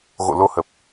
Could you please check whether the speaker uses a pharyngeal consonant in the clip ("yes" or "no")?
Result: no